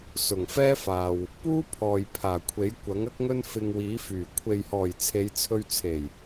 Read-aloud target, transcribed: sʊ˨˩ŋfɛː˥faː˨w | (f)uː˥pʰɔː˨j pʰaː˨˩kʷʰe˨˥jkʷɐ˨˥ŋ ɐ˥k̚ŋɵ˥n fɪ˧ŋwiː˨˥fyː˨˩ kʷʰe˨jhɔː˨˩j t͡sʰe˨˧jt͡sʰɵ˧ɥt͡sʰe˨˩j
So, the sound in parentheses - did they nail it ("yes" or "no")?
no